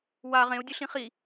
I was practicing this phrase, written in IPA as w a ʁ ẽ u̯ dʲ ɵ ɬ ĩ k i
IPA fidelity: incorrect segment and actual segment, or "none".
k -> χ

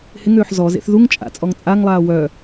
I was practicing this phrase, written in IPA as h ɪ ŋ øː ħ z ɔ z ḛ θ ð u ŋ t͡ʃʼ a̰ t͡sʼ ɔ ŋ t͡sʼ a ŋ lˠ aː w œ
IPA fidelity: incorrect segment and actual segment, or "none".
none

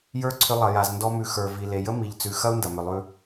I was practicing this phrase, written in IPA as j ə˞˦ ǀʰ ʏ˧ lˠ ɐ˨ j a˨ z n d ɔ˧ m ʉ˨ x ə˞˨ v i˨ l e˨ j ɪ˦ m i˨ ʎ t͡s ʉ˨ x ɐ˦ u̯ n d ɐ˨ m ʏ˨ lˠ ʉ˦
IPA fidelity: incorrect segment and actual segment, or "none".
ɪ˦ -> ə˦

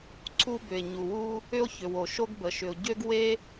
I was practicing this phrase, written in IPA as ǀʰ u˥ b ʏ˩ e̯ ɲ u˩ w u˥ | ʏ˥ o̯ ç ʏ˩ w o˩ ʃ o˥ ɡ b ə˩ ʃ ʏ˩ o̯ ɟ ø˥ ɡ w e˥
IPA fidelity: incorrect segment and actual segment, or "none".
none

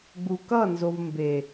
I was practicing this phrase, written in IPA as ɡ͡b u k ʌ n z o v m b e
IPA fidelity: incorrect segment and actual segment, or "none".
none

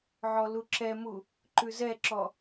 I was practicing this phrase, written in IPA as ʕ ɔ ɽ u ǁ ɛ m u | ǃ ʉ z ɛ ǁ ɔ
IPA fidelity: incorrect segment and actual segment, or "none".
ɽ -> l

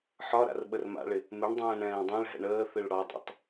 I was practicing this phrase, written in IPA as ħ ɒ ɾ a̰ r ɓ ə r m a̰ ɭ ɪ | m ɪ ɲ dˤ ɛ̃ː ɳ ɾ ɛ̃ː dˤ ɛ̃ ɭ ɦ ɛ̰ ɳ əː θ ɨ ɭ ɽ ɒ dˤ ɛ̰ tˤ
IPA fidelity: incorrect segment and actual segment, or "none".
ɲ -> ɳ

